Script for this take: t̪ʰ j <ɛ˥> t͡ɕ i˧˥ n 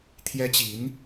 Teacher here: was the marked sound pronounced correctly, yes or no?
yes